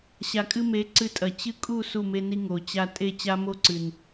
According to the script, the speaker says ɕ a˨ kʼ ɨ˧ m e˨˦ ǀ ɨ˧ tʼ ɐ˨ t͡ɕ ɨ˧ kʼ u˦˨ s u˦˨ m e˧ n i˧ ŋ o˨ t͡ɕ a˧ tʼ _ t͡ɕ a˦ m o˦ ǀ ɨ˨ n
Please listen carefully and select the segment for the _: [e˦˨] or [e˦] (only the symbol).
e˦˨